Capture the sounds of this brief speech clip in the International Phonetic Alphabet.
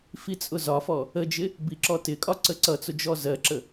fit͡sʼʊzɒfɔ | əd͡ʒɪ | biǁɔtɪkʼɒ ǀəǀʌt͡sʊ d͡ʒɔzɜǁə

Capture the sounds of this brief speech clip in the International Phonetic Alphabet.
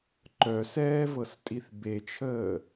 ǃœsɛːvɤstʼiθ bet͡ʃʰəː

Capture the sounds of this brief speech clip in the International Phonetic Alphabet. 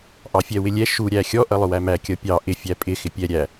ʔɑfʲɛwɪlʲɛ ʃu ɾʲæxʲɔ ʔʌlˠʊwæmæ kʲʌpʲɑ ʔɪ fʲæpʼɪ xɪpʲɛ ɾʲæ

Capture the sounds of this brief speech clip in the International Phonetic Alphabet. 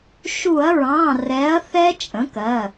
ʃu˧˩˧ɐ̯ɹɑ̃˩˧˩ rɛ˩˥ɐ̯ θɛ˦˥t͡ʃʼə̃˩˥kɜ˩˧˩

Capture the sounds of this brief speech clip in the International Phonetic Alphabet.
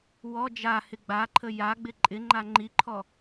wɔ d͡ʒahɪ ɡ͡baǃʰə jaɡ͡bɪ ǃʼɪŋ͡ǃa ŋ͡ǃiǃʰɔ

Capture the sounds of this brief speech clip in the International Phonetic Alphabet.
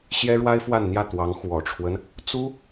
ɕjɛ˥ɻwa˥ɪ̯fwa˥˧nn̪jä˥˩ t̪wɑ˧˥ŋxwɔ˨˩ʈ͡ʂʰwə˦n | t͡su˥

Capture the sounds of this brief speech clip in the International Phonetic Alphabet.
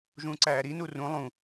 ʒũːǀæːɾi nurũ lˠũ

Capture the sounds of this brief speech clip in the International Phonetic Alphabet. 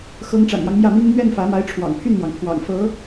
xɤ˧˥ŋʈ͡ʂa̰˨˩njɑ˦ŋ mjä˥˩mi˥ŋ n̪ɥɛ˥˩nfä˧˥ma˧˥ɪ̯ ʈ͡ʂʰwɑ̰˨˩ŋpʰy˥˩nmwɑ˩ŋpʰwɑ̰˨˩ŋ fɤ˧˥

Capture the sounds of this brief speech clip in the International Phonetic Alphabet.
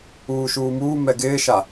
uːʃuːmuː mɛɡɪːʃa

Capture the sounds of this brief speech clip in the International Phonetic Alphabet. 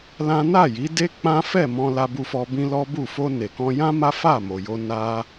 lã˦ na˦˨ji˨˦de˦ k͡pã˦fɛ˦˨mɔ̃˧ la˧bu˧fɔ˧bĩ˦ lɔ˦bu˦˨ fo˧ne˨kɔ̃˧jã˦ ma˦fa˦˨mo˨jo˧ na˦

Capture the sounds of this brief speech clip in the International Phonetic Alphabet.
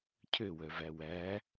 cʰøwœvæ wæ

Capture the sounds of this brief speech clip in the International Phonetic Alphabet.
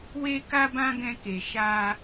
we˦ka˦bã˦ ɡɛ̃˧ke˨ ʃa˧

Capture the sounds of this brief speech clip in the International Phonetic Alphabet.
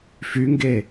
fyŋɡe

